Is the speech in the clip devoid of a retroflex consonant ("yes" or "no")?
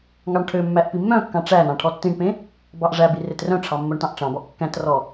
no